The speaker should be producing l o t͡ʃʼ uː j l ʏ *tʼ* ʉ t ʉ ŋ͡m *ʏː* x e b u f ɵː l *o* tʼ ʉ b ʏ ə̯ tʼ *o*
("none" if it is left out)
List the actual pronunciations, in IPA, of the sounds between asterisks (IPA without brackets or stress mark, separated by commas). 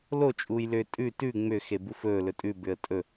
tʼ, ʏː, ɵ, ɵ